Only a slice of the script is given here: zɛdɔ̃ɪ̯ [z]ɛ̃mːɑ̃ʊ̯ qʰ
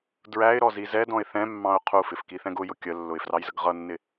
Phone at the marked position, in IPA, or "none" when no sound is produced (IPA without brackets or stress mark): θ